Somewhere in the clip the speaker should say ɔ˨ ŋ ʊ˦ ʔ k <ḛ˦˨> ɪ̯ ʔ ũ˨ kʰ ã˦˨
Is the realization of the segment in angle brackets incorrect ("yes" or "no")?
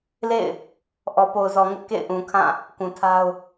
no